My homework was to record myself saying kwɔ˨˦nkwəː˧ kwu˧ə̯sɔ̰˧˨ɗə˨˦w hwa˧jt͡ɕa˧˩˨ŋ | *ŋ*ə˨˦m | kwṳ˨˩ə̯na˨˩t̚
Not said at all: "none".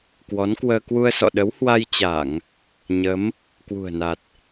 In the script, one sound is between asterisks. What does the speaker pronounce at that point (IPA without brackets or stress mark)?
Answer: ɲ